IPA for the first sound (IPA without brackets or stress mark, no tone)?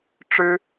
ʈ͡ʂ